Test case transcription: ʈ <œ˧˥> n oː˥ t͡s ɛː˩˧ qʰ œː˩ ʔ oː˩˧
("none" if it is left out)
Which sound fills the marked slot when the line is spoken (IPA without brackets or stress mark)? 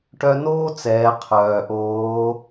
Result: œ˧